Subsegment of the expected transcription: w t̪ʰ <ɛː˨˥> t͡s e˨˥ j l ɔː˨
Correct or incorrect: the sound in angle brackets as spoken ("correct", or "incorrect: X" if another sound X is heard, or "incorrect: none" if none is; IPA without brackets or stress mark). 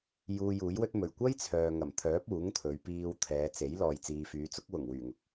incorrect: ɛː˨˧